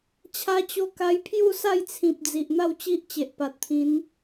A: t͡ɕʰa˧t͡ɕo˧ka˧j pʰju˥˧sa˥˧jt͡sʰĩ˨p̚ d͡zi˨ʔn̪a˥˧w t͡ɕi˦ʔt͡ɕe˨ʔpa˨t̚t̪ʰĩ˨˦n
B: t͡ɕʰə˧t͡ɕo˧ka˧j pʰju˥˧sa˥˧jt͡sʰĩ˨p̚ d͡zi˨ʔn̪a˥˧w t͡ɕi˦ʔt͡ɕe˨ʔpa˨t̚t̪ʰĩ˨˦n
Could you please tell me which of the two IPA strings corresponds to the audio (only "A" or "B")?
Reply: A